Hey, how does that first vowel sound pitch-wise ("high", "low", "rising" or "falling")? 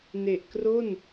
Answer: low